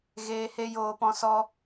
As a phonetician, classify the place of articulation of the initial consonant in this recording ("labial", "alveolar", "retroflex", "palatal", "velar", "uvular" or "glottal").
velar